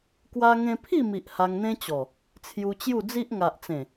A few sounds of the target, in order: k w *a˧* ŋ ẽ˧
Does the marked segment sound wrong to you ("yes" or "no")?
no